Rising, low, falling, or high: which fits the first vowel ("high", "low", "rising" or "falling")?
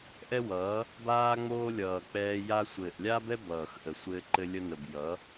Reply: high